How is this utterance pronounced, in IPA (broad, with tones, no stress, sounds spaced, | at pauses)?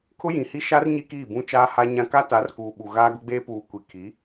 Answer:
kʰ ʊ˦ j ĩ˨ h i˦ ʃ a˦ r ɲ i˦ k iː˦˨ b ũ˦ t͡ʃ aː˦ h a˦ ɲ ã˦ k a˦ t a˨˦ r k uː˨ ɓ u˨ ɣ aː˦ ɡ ʊ˦ ɡ͡b eː˦ p uː˨ kʷ i˨ kʰ i˨˦